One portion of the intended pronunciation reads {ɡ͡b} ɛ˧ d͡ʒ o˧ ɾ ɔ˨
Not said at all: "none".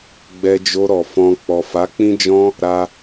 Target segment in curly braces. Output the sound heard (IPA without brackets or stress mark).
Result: ɡ͡b